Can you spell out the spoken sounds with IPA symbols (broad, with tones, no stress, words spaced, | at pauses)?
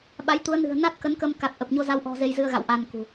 ɓa˨˦j t̪u˨˦ə̯nɨ̤˨˩ə̯ na˦˥t̚ kə˨˦nkə˧mka˨˩t̚ ʔə˨˩p̚ɲo˧za˧wʔɔ̤˨˩ ze˧jzɨ˧ə̯ɣa̰˧˨w ʔa˧nkṳ˨˩